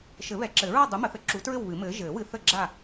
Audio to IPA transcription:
ʃ ɘ˨˩˦ β ɛ˨˩˦ ǁ ɘ˨˩˦ ɹ ɒ˥˨ dˤ u˨˥ m ə˨˩˦ θ ə˨˥ ǁ u˨˥ t ɹ ɘ˥˨ w β ɨ˨˩˦ m ɘː˨˥ ʒ ɘː˨˩˦ w ɨ˨˥ θ ə˥˨ ɡ͡ǁ a˥˨

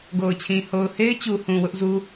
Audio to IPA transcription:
ɡ o˨ ʊ̯ t͡ɕʰ ĩ˨ h o˨ ʊ̯ h e˦ ɪ̯ t͡ɕ u˨ h ũ˨ w ʊ˦ ʔ z u˦

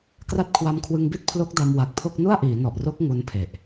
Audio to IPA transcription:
k r a˦˥ t̚ kʰ w a˧ m kʰ w ɯ˧ ŋ b i˥˩ t̚ pʰ l o˦˥ k̚ d a˧ m w a˨˩ k̚ pʰ o˥˩ k̚ n u˥˩ a̯ ʔ iː˩˦ n ɔ˨˩ ʔ r o˦˥ k̚ ŋ u˦˥ n pʰ e˨˩ ʔ

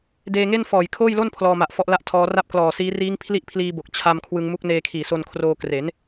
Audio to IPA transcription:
d eː˧ ŋ e˥˩ n f ɔː˨˩ j kʰ oː˥˩ j l o˥˩ n pʰ l ɔː˧ m a˨˩ ʔ f ɔ˦˥ ʔ l a˥˩ ʔ tʰ ɔː˦˥ r a˥˩ p̚ k l ɔː˨˩ s iː˦˥ r iː˦˥ ŋ pʰ l i˥˩ ʔ pʰ l iː˧ b o˨˩ k̚ t͡ɕʰ a˧ m kʰ w ɯ˧ ŋ m u˦˥ k̚ n eː˧ kʰ iː˨˩ s o˧ n kʰ r oː˧ k r e˩˦ n

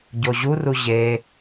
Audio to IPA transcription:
ɟ o ʑ u r u ʑ e

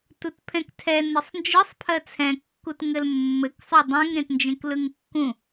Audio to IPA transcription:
t u t pʰ ɛ̃ k tʰ ɛ n ɘ sˤ n d͡ʒ ɯ sˤ pʰ ɜ t͡sʰ ɛ̃ kː u t ŋ ɘ l mː ɘ k sˤ u dˤ ẽ ŋ ɾ ẽ t n d͡ʒ ẽ k l ɯ ŋ kː ũ

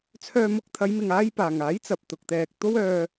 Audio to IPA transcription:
t͡sʰ œː˧ m ʊ˧ k̚ t̪ʰ ɐ˨˧ j m ɪ˨ ŋ aː˥ j p aː˨ ŋ aː˨˥ j t͡s ɐ˨ p̚ t̪ ʊ˨ k̚ t̪ ɛː˨ k̚ t̪ o˥ w œː˧

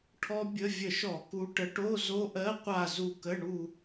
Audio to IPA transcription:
ʈʰ ɔ˦˥ bʲ ə˧˥˧ vʲ ə˧˩˧ ʃ ɔ˧˩˧ k u˨˦ ʈ ə˨˦ ʈ o˧˥˧ z o˦˥ ʔ ɜ˧˥˧ qʷ a˦˨ z u˦˨ k ə˧˥˧ ɳ u˦˨

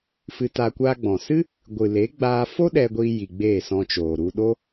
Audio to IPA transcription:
f ɨ˧ t a˧ kʷ a˧ ɡ͡b ɔ̃˨ s ɨ˦ | ɡʷ ɨ˨ l e˨˦ ɡ͡b aː˧ f o˦ ɗ ɛ˧ ɡʷ iː˧ j i˨ ɡ͡b eː˦˨ s ɔ̃˧ t͡ʃ oː˨ ɾ u˧ ɗ o˦

